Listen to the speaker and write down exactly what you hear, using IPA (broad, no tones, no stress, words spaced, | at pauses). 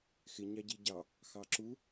xɪ ɲɑɟiɟɑ | xɑǁu